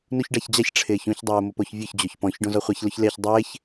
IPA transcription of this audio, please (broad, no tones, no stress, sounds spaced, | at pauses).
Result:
n u ç ɖ a ç d͡ʑ a ç ʈ͡ʂʰ ɪː ç ũ ç dˤ ʊː m ʊ p o ç vʲ ʊ ç d͡ʑ o ç p ɔ̃ ç ɖ õ z ɔ χʷ ɛ ç l ʊ ç l e ç dˤ ɪː ç